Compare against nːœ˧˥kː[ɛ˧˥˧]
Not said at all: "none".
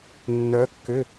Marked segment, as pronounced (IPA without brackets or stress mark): ʏ˧˥˧